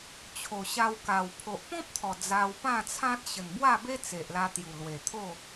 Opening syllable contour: low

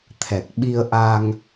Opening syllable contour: low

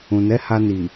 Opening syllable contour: low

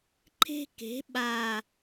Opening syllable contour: high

